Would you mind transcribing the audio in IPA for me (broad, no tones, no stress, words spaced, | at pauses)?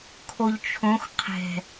kʰoʎt͡ʃʰõx qʰɛ̤